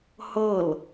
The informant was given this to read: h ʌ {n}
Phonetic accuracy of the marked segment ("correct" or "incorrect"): incorrect